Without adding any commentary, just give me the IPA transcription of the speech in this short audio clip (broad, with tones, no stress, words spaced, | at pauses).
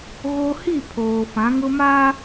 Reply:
ɣo˦ hi˦˨pʰoː˨ fã˨˦ŋʊ˦maː˦